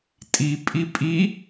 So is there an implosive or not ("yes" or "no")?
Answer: no